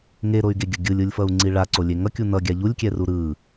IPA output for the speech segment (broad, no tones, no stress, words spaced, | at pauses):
ŋeɾoy̯ɡeɡʲʌ ɡʲɯlʲɯlʲfʌu̯ŋ͡ǀi ɭaǀolʲe ŋʌkʲu nʌɡʲa ʎulʲkʲɛru ɾɯ